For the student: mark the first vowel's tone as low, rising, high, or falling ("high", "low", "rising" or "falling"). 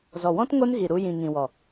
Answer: low